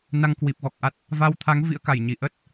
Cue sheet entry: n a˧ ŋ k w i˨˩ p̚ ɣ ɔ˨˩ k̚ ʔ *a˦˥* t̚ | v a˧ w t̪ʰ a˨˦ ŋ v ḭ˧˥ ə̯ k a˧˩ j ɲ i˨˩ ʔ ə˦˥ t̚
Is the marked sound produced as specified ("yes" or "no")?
yes